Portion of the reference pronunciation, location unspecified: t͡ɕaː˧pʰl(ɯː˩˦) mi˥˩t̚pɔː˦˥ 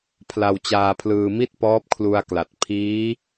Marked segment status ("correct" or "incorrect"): incorrect